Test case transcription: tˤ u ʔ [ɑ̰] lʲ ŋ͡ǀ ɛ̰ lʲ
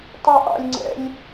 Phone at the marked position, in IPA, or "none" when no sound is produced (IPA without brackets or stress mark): ɑ̰